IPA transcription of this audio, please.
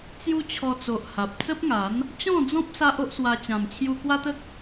t͡s j u˦ t͡ɕʰ ɔ˧ t͡s o˨ ʔ h a˨ p̚ t͡s ə˦ p̚ ŋ a˨˦ n | t͡ɕ ɔ̃˥˧ d͡z ɔ̃˦ p̚ s a˦ ʔ o˦ ʔ s w a˧ t͡ɕ ã˨˩ m t͡ɕʰ j u˧ k w a˦ t̪ ə˦ k̚

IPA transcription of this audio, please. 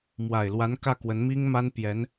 m w a˨˩ ɪ̯ l w a˧˥ n k ä˥˩ k w ə˧˥ n m i˥ ŋ m a˥ n p j ɛ˧˥ n

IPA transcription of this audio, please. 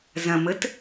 z ɐ̃ m ə t

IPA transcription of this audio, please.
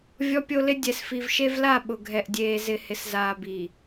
vʲ ɔ˦ pʲ o˦ l ɪ˦ dʲ ɛ˨ s f i˨ v ʃ e˦ v l a˦˨ ɓ ʊ˨ ɡʱ ɛ˨ ʔ dʲ eː˨ z ɪ˨ h ɪ˨ s z aː˨ b i˨

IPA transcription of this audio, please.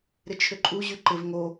ɾ ɪ t͡ʃʰ ʏ ǃʼ u ʑ y ǃ ɪ v ŋ o

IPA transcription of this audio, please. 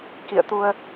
k ḭ˧˨ ə̯ t̪ u˧ ə̯

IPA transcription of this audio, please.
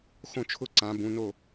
x õ˥˨ t͡ʃʰ ʊ˥˨ ǀ ã˨˥ b ũ˨˥ n o˥˨

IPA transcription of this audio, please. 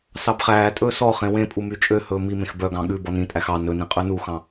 s ɑ b χ æː tʼ ɵː s ɔ χ ẽ w ẽ pʼ u m y t͡ʃʼ ø h ɵː m i m ẽ x b œ ɡ ɑ̃ ɠ ʉ b ɔ n ĩ tʼ æ x ɑ n ɵ n ĩ qʼ ʉ n u x ɑ̃

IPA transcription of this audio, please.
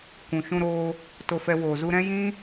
kʷ ũ˨ ʃ ũ˧ ɾ oː˧ | t o˧ f ɛ˧ w oː˨ z u˧ ɾ ɛ̃˦ j ĩ˦

